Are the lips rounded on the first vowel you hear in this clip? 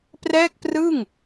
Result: no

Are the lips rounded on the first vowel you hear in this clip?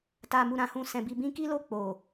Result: no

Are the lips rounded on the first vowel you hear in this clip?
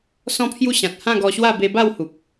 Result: yes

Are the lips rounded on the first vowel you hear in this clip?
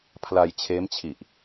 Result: no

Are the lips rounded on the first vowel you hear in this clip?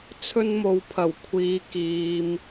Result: yes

